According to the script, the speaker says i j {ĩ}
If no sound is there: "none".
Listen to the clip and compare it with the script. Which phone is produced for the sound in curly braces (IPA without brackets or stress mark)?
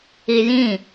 ĩ